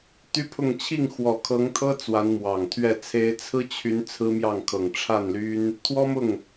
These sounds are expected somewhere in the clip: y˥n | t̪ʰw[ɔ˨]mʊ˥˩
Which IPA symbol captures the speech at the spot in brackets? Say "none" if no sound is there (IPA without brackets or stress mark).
ɔ˥